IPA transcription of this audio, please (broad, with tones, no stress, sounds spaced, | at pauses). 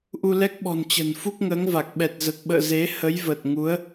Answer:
ʔ u˧ l ɛ˦˥ k̚ ɓ ɔ̤˨˩ n t͡ɕ ə̤˨˩ n f u˦˥ k̚ ŋ əː˨˦ ŋ v a˨˩ k̚ ɓ ɛ˨˩ t̚ z ə˨˩ t̚ ɓ ə̰ː˧˨ z e˨˦ h ə˨˦ j v ə˨˩ t̚ ŋ u˨˦ ə̯